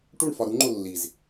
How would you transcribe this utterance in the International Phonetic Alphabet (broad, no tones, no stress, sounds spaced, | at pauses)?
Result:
ʈ u ɳ f ɒ ɾ u ŋ͡ǃ o lː i z